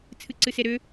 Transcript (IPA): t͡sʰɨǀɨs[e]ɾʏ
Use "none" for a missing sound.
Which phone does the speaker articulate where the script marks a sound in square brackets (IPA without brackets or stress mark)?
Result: e